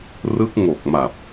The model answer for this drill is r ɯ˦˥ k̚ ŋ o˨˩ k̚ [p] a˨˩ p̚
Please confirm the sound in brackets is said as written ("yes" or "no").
no